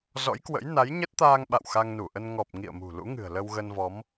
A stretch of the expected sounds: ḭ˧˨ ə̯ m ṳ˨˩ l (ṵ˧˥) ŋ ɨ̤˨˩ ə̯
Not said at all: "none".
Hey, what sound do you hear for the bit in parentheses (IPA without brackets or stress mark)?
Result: ṵ˧˥